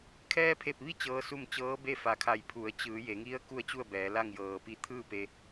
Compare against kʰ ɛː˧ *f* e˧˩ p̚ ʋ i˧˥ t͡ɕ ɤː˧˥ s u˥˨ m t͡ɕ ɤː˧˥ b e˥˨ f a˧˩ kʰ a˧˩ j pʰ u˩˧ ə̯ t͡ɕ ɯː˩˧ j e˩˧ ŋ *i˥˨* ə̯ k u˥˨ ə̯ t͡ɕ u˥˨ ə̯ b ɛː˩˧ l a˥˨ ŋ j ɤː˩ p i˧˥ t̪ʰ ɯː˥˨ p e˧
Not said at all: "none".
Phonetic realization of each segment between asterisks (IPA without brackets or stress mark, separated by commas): pʰ, i˧˥